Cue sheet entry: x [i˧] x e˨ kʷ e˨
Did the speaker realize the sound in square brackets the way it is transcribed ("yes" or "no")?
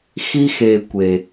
yes